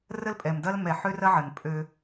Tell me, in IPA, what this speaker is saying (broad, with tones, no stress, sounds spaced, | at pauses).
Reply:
r ə˦ l pʼ ɛ˨ m d ɐ˦ l m ɛ˨ ħ ø˦ r ɐ˦ ʕ ə˨ n pʼ ø˦